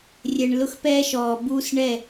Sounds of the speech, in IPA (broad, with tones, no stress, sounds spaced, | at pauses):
rʲ ɛ˨ ɳ l ʊ˦ x p ɛː˦ ʃ ɔː˨ b uː˦ s ɳ ɛ˦˨